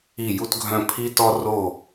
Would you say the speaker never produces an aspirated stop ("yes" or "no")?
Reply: no